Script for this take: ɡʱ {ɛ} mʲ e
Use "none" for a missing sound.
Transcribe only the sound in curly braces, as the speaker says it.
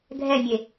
ɛ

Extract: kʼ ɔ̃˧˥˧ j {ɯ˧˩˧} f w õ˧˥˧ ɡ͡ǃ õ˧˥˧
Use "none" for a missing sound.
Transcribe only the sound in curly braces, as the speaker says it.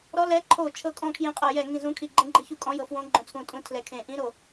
ɤ˧˩˧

